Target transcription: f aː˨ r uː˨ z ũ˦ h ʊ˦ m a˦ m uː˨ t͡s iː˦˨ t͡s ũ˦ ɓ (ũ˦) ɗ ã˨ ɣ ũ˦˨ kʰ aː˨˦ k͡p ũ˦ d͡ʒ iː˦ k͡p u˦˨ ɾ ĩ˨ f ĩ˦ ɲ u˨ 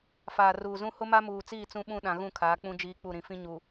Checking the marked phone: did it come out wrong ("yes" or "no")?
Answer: no